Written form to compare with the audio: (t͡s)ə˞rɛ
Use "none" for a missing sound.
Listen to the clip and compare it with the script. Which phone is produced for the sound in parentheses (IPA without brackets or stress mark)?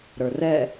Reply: ɾ